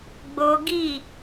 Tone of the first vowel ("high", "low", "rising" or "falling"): high